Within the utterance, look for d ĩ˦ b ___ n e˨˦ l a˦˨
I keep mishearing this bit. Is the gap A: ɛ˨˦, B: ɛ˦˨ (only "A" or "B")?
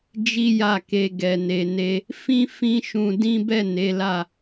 B